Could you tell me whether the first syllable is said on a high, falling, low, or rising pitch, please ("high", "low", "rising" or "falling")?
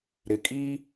low